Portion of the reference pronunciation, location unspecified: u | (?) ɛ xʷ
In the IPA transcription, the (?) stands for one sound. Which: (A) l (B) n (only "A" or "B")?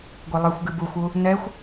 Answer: B